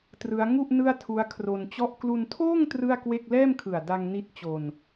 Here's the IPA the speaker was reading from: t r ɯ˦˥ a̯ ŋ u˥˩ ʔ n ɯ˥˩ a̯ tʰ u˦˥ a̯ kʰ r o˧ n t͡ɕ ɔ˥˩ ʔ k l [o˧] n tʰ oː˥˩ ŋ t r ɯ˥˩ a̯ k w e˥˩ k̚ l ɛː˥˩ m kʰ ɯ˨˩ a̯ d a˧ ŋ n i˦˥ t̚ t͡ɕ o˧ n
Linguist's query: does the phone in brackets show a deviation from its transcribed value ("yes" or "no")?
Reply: yes